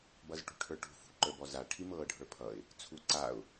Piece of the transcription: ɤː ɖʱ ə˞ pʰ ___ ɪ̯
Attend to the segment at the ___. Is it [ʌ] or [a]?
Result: ʌ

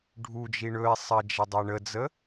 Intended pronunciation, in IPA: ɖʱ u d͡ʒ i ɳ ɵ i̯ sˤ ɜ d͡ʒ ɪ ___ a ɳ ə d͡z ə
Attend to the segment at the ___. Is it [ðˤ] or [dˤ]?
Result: dˤ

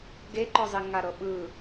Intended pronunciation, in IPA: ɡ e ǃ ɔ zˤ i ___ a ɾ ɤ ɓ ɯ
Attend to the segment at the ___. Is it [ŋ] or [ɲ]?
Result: ŋ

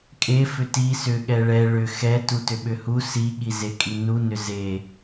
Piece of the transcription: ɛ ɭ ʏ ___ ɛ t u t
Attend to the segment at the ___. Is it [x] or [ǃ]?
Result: x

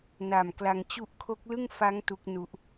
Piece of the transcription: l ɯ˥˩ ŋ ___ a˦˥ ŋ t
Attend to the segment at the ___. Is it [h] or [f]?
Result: f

